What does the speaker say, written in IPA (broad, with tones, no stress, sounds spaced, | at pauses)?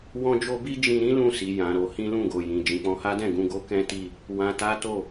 w ɔ̃˦ d͡ʒ o˦ b i˦ d͡ʒ ĩ˧ ɾ ĩ˦ l ũ˦˨ s i˨ j ã˨ ɾ o˧ h ĩ˦ l ũ˦˨ ɡ o˨ j ĩ˨ d͡ʒ ĩ˨ k͡p ɔ̃˧ h a˦ d ɛ̃˦˨ ɡ ũ˧ ɡ o˦ k ɛ̃˦ t i˦˨ | w ã˧ t a˦ t o˦˨